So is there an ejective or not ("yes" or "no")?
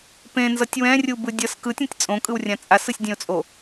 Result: yes